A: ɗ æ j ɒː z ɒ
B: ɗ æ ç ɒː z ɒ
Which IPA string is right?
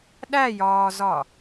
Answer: A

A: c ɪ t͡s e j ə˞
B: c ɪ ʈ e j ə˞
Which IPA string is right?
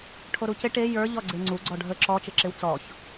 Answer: B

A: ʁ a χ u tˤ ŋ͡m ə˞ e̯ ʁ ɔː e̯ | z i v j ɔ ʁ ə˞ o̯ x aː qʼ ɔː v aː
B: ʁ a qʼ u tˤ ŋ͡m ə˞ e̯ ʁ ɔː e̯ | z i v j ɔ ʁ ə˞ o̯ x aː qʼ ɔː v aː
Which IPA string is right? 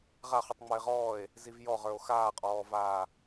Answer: A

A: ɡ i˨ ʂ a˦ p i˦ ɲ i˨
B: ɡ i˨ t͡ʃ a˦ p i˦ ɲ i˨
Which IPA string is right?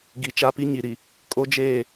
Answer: B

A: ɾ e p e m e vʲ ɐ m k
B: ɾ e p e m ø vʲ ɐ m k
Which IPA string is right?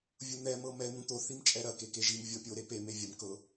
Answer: A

